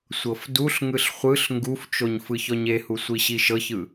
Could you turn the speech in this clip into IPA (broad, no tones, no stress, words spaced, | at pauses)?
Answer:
sʷɤfduɬŋɯɬ χʷɯɬ ŋɡuft͡ʃoɲ fɯçɔɲehu sʷiɕiʃɤçɯ